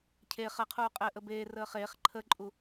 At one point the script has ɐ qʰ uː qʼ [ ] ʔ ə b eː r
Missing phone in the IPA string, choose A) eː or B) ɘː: B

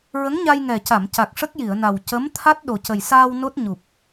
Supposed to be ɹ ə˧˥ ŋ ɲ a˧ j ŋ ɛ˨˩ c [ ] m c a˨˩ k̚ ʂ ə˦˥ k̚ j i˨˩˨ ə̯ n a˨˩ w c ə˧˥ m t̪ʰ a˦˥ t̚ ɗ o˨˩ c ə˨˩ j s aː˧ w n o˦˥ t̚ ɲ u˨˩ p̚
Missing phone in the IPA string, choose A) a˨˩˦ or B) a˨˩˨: B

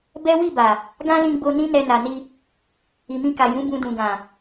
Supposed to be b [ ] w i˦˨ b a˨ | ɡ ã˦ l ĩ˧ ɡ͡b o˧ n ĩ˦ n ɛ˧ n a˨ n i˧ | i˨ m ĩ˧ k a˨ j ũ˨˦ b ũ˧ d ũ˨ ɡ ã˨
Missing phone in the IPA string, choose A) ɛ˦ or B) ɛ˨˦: A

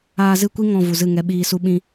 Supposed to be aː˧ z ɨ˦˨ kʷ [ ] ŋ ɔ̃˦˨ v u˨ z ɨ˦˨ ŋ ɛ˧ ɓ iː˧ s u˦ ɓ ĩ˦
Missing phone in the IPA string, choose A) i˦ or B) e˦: A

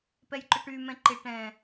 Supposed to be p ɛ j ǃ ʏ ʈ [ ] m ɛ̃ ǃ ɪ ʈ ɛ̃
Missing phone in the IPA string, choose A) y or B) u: A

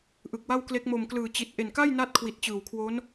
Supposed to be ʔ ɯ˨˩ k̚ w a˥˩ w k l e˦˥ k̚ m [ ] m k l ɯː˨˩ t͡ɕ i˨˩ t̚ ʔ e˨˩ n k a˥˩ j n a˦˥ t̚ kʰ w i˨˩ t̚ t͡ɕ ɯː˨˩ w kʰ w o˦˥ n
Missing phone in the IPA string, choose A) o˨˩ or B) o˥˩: A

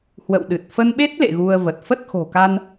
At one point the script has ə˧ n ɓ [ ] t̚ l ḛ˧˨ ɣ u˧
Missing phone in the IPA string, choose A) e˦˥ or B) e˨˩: A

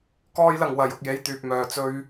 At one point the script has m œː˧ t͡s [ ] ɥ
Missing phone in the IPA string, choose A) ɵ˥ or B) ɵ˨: A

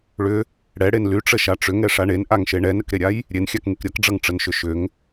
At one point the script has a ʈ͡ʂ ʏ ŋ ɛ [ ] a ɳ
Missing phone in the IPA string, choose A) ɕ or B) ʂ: B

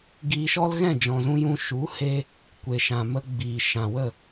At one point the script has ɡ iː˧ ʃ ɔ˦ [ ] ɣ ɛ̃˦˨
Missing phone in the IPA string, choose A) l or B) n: A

